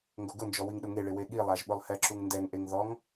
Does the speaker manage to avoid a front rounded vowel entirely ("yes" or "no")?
yes